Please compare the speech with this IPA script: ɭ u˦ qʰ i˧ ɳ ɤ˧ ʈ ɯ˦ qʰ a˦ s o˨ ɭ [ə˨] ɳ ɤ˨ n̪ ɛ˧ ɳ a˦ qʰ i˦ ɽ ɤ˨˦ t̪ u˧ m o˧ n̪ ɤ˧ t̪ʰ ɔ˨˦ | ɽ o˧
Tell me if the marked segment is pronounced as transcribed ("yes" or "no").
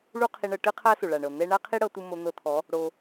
no